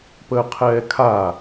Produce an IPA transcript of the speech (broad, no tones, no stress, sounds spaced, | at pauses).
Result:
p əː qʰ ɛː kʰ a